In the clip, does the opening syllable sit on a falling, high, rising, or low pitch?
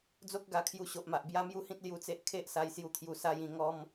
high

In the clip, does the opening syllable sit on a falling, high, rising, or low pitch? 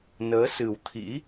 rising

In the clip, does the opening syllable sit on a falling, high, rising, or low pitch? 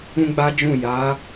high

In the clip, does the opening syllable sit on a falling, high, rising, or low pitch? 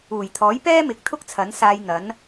low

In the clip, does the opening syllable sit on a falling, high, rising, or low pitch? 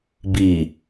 low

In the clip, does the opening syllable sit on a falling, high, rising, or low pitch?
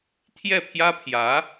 falling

